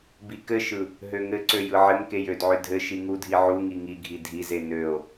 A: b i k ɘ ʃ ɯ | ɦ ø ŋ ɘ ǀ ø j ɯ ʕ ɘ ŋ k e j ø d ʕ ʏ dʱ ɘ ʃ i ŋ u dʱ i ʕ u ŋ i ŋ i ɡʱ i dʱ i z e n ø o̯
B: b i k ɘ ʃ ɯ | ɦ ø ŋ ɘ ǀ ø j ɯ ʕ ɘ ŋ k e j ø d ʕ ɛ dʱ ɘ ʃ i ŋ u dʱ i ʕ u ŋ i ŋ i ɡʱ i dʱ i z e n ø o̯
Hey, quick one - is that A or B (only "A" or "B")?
A